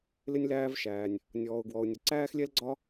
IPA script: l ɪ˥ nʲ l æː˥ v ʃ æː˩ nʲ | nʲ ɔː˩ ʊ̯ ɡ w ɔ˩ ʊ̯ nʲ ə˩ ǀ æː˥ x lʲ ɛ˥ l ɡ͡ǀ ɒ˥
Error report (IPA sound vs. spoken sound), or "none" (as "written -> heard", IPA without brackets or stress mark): none